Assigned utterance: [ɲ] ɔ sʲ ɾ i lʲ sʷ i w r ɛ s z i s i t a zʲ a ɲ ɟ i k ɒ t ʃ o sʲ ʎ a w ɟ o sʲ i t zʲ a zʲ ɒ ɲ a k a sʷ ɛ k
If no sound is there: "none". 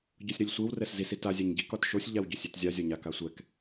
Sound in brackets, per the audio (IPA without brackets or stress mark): ɟ